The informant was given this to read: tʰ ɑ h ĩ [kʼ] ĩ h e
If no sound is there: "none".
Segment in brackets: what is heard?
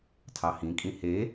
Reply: kʼ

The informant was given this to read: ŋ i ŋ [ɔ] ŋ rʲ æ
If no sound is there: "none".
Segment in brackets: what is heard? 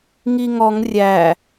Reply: ɔ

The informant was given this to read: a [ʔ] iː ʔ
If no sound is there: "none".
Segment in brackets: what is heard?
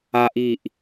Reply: ʔ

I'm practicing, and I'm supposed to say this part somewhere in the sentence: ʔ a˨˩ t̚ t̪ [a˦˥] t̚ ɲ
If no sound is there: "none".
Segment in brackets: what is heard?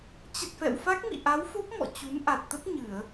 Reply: ə˦˥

